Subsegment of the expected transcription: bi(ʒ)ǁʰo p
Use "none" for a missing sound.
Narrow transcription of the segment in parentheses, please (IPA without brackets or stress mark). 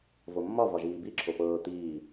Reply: none